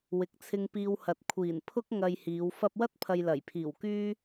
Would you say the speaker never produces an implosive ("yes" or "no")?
yes